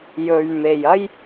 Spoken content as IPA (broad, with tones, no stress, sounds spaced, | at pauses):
j ɵ˧ ɥ m e˨ j ɐ˥ j